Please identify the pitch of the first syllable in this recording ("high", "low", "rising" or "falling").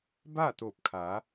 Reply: falling